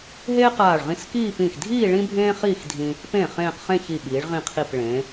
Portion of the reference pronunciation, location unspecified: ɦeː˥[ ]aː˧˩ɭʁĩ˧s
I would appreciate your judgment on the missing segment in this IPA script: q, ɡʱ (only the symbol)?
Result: q